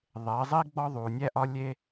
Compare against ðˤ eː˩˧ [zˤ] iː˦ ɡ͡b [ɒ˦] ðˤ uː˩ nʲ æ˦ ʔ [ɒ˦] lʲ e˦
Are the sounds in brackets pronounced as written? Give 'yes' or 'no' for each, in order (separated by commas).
yes, yes, yes